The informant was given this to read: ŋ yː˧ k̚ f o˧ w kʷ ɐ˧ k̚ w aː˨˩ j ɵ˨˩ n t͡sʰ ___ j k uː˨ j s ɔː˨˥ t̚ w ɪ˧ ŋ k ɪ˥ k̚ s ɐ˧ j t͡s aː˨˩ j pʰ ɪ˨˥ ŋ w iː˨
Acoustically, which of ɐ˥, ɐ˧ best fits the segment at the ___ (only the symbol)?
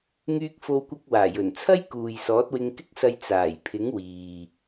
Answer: ɐ˥